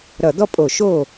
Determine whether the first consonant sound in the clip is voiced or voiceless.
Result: voiced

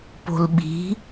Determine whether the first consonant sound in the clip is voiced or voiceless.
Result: voiceless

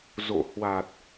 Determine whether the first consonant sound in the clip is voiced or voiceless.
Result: voiced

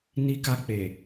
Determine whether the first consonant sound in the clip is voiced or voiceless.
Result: voiced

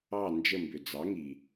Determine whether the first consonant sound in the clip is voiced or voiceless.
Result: voiced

